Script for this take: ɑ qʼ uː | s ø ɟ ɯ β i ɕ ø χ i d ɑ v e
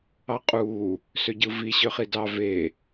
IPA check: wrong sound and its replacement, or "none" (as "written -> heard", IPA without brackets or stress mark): β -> v